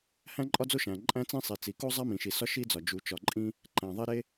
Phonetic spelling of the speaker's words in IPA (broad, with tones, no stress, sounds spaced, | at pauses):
h æ̃˥ ǃʼ ɒ˥ d͡z o˥ ʃ æ̃˩ ǃʼ æ̃˥ t͡s ĩ˥ sˤ i˩ t͡s i˩ k o˥ zˤ æ˥ m ĩ˩ ʃ i˩ s ɒ˥ ʃ i˥ d͡z ɒ˩ d͡ʒ u˩ t͡ʃ ɒ˩ ǃʼ ĩ˥ | ǃ æ̃˩ ðˤ e˥ ɾ e˥